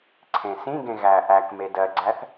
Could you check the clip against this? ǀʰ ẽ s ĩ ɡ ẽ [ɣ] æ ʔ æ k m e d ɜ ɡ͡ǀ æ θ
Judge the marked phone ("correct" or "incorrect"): correct